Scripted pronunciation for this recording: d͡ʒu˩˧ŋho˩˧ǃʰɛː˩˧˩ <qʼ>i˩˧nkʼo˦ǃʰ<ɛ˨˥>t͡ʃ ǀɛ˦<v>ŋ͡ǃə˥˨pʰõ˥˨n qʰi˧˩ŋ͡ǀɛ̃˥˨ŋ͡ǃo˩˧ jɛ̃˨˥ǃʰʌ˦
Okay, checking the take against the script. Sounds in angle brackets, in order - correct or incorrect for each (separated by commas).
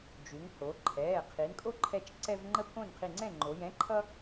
incorrect, incorrect, correct